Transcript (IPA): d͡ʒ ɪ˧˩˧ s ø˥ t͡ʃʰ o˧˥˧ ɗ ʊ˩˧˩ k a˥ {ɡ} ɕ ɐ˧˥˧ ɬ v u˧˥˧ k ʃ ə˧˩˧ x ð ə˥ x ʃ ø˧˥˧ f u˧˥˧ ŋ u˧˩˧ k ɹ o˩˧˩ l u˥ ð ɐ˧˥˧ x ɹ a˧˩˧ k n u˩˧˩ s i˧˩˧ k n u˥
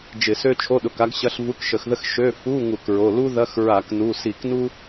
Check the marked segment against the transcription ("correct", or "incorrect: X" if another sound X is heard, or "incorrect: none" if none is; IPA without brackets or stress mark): correct